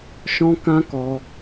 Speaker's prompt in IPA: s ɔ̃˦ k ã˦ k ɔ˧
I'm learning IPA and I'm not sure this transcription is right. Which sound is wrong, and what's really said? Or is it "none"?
s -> ʃ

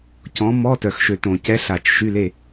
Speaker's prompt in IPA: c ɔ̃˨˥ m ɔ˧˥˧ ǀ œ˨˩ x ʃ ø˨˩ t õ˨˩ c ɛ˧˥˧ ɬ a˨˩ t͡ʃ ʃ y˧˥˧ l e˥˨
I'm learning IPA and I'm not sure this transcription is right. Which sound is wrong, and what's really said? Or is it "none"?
ǀ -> t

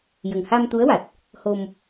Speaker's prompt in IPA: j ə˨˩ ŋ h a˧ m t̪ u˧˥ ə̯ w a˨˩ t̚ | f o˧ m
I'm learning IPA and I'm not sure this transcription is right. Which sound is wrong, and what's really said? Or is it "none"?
f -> h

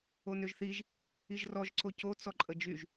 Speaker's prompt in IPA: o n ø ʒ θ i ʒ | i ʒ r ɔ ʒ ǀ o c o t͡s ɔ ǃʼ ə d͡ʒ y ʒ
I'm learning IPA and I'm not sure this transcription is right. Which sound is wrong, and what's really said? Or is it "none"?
none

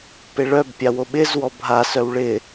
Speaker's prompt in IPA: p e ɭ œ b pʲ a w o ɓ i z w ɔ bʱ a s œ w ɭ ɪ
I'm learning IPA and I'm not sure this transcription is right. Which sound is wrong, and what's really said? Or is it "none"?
i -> ɪ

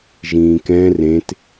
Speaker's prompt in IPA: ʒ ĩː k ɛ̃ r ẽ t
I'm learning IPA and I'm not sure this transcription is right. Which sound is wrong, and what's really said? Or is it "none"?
none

